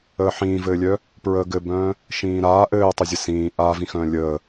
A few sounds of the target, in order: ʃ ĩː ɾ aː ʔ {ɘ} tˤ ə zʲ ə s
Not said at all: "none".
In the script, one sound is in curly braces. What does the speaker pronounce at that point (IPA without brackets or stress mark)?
ɘː